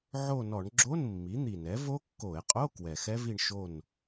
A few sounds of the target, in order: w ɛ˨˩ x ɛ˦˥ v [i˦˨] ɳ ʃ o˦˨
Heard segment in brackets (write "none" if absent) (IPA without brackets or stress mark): i˦˨